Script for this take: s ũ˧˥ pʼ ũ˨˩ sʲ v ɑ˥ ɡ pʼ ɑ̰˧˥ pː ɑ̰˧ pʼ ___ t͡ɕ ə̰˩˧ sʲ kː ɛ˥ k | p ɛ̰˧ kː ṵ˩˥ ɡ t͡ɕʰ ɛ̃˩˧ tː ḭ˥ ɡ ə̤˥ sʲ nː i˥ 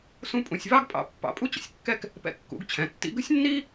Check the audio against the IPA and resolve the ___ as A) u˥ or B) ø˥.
A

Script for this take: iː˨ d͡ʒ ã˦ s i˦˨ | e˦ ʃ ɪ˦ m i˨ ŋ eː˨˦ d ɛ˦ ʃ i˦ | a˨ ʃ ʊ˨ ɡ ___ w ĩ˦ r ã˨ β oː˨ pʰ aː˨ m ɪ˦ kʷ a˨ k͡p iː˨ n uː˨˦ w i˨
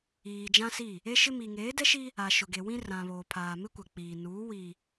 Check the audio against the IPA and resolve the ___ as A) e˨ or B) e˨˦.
A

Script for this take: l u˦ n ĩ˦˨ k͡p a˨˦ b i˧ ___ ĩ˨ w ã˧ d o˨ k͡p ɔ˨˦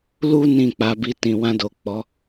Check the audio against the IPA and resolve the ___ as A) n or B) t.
B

